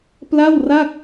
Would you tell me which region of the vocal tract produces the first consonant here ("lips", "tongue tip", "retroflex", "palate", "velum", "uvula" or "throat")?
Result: lips